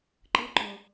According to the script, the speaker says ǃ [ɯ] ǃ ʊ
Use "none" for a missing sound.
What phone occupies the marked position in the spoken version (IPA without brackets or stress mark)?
ɯ